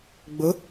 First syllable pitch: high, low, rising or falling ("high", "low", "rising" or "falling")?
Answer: rising